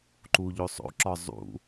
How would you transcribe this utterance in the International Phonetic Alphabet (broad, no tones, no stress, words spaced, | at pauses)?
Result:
ǃuʎosˤo̰ǁɒ zˤṵ